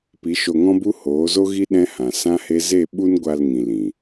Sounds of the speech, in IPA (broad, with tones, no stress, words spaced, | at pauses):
pi˨˦ʃo˧ŋɔ̃˦bu˦ hoː˨˦zo˦ɣi˦ ɗɛ̃˦hã˨ sã˦he˦ ze˦˨ ɓu˦nɡʷa˧lŋĩ˨ lĩ˨